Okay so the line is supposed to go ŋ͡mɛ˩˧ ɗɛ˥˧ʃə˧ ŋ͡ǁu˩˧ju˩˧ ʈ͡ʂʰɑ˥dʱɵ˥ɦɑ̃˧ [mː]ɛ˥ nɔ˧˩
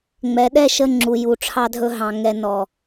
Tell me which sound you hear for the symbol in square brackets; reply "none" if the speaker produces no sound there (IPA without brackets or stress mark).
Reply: ŋ